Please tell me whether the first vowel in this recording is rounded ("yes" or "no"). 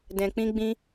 no